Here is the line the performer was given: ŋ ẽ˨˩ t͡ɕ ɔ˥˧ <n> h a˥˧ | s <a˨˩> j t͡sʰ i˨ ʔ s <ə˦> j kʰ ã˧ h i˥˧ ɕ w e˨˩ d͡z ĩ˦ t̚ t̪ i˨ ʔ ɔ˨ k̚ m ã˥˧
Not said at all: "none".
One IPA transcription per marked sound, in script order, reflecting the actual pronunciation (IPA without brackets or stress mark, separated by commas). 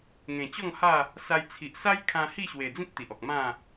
ŋ, a˧, a˦